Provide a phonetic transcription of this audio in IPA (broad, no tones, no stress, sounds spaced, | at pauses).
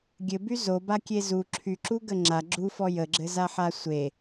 ɡʲ ɘ b y z o b a kʲ e z u ǁʰ y ǁ u ɡ ə ŋ͡ǁ a ɡ͡ǁ u f ɔ j ə ɡ͡ǁ ɘ z a ħ a sʷ e